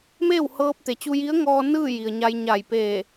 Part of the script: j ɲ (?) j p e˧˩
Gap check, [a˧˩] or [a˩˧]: a˧˩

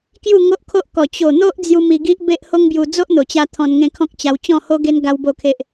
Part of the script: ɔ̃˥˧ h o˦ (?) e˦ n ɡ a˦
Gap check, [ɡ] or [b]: ɡ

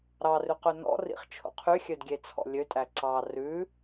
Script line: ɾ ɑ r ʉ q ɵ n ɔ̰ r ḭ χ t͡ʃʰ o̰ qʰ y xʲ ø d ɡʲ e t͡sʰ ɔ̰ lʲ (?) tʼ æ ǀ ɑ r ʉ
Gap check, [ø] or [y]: ø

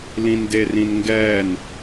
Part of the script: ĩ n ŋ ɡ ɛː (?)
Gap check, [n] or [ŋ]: n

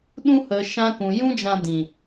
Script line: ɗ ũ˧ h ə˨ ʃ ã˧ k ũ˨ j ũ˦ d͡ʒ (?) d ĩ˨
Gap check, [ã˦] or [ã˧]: ã˧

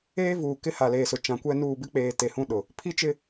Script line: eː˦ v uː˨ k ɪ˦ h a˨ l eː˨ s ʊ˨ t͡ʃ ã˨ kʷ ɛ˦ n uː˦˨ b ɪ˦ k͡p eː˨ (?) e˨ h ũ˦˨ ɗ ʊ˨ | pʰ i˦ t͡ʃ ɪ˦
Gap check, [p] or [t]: t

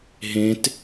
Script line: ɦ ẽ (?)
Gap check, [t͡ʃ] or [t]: t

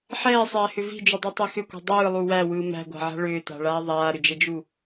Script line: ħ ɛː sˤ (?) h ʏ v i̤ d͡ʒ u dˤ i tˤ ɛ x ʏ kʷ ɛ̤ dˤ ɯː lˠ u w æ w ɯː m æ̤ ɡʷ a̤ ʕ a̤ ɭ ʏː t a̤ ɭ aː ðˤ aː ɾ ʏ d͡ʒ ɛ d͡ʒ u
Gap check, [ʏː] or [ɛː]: ɛː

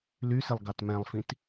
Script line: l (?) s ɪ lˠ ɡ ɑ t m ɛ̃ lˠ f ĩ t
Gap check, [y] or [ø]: y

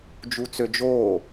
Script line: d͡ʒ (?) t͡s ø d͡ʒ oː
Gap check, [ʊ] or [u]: u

